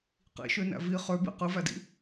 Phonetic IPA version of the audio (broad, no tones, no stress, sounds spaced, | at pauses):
q ḭ ʃ ø n æ̰ v i χ ø b ḭ q ɯ v æ d ḭ